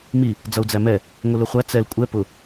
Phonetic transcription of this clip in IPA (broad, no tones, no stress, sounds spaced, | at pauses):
m i | d͡z ʌ u̯ d͡z æ m ɛ | ŋʷ i l ʊ χʷ æ t͡s ɛ l kʷʼ ɛ p ʊ